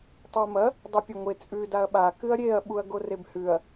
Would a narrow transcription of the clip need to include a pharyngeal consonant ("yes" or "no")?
no